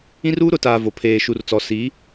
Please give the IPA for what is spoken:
ĩ˦ r uː˦ ɾ ʊ˨˦ t aː˨ v o˨ pʰ eː˨ ʃ u˨ r t͡s ɔ˨ s i˨˦

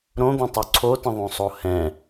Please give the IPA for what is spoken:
ɾ õ d̪ õ tˤ o ǀʰ o t ə̃ ðˤ õ sˤ o h ɛ̃

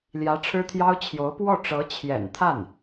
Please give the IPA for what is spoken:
l j ä˧˥ ʈ͡ʂʰ ɻ̩˥ t̪ʰ j ɑ˥ ʊ̯ t͡ɕʰ j o˧˥ ʊ̯ p w ɔ˥˩ ʈ͡ʂ ɤ˧˥ t͡ɕʰ j ɛ̰˨˩ n t̪ʰ a˥˩ n

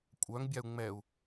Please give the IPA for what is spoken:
kʷʼ œ ŋ bʲ a u̯ ŋ͡m ɛ u̯

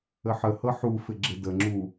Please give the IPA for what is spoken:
ə ħ ə h ɤ ħ u f ɪ ɡ͡ǁ ɪ d ə ŋ͡ǁ u

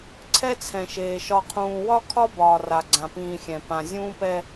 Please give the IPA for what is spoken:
ǀʰ ɛ˦ t͡sʰ ɛ̃˨ ʃ eː˨ ʃ ɒ˨ qʰ ũː˨ w ɒ˦ kʰ ɒ˦ b ɒː˨ r a˨ ɡ͡ǀ ã˨ p ĩː˨ xʲ ɛ̃˨ p ã˨ zʲ ũː˦ p ɛ˦

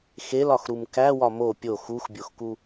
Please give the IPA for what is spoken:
x e l ɒ x ɾ u m k æ w ɒ m o pʲ o x u x bʲ o x k u

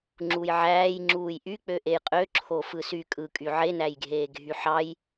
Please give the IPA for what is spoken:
ŋ͡ǁ u j ʕ æː j ŋ͡ǁ uː j ʔ y k͡p ø ʔ e j qʼ ø ǁʰ o f ɯ s y kʼ ɯ kʼ y ʕ e n æ j ɡʱ eː ɡʱ y ħ ɑ j

